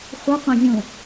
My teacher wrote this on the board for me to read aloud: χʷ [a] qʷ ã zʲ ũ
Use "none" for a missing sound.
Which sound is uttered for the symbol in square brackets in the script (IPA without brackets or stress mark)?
ɐ